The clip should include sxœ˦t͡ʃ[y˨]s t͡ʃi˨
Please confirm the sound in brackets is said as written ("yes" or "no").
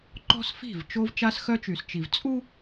yes